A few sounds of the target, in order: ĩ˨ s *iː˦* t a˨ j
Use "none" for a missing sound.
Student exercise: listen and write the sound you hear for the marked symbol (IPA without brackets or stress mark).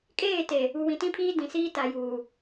iː˦